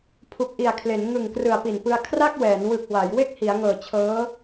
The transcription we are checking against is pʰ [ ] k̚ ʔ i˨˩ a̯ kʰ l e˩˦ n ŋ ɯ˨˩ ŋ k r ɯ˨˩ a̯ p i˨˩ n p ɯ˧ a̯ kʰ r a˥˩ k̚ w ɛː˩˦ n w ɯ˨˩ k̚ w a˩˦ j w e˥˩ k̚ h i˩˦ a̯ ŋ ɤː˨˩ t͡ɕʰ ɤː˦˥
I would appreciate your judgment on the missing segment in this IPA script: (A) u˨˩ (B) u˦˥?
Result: A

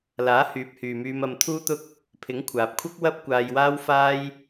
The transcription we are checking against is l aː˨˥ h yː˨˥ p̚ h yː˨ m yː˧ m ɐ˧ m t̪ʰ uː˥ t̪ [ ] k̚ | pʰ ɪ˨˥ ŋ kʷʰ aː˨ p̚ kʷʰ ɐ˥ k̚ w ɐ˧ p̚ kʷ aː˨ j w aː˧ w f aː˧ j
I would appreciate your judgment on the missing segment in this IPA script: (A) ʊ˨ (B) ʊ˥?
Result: B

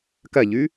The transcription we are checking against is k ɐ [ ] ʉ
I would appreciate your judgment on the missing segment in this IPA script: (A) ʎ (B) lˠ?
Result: A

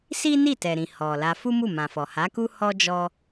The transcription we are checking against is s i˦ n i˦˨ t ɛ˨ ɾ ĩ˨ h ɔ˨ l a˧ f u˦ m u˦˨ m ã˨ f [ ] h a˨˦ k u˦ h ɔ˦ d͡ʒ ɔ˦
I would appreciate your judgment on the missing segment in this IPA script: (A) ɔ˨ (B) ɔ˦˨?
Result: A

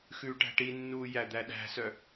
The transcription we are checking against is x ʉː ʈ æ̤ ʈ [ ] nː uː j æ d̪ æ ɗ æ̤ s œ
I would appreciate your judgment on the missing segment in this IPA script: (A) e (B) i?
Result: B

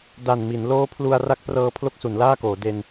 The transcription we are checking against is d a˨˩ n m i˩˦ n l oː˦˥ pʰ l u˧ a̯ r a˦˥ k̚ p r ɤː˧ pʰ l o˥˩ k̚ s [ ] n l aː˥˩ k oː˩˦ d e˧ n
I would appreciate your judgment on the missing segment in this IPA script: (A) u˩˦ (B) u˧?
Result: A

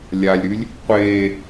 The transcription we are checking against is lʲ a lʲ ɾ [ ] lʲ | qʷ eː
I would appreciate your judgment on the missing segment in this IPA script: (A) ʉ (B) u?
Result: A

